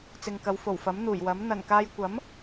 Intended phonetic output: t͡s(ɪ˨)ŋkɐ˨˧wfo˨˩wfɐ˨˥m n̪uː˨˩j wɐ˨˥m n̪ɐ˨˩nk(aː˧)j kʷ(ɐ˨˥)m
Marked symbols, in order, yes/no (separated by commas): yes, yes, yes